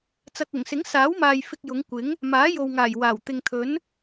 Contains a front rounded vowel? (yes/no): no